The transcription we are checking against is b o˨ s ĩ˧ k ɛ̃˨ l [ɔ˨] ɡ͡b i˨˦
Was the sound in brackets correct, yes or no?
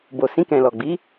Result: yes